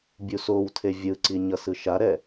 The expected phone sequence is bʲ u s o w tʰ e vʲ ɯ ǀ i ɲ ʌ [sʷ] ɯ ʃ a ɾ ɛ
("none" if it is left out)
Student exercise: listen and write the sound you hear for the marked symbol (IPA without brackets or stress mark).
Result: s